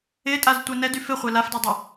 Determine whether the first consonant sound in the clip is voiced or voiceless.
voiceless